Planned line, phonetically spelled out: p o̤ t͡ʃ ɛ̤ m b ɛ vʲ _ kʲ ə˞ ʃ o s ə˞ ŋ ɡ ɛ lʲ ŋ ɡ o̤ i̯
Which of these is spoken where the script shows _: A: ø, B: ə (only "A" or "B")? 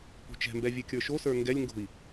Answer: A